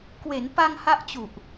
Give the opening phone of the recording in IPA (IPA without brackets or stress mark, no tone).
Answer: k